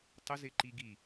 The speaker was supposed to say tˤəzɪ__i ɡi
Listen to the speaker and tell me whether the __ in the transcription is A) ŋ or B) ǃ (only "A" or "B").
B